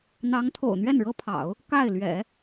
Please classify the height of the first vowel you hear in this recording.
low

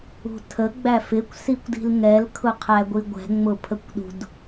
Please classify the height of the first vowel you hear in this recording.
high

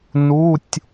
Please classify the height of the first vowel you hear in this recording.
high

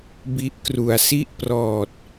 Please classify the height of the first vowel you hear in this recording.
high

